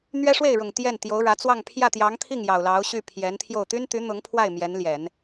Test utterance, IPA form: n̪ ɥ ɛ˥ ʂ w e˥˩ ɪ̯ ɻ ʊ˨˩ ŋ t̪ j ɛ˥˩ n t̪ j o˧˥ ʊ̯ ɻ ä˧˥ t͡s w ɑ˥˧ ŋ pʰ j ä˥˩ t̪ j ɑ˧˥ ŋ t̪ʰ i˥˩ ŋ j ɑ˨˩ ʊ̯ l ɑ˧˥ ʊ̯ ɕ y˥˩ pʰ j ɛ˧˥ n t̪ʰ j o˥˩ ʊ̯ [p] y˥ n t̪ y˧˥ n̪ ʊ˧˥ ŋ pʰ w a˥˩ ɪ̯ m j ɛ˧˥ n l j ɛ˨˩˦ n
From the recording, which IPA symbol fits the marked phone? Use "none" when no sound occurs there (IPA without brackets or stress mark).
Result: t̪